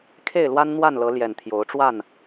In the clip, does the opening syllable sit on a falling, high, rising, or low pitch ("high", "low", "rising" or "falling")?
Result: falling